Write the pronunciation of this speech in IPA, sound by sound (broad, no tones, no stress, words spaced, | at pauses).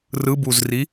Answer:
rɯbuzri